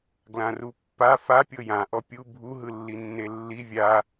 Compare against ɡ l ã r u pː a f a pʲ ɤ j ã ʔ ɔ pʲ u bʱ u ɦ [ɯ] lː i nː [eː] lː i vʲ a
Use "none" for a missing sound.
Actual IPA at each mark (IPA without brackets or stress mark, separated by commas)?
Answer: ɯ, e